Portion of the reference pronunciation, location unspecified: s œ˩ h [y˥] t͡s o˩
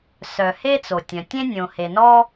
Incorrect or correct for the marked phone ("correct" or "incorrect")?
incorrect